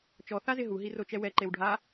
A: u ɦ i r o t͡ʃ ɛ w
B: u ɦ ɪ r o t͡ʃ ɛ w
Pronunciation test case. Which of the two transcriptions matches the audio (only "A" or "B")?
A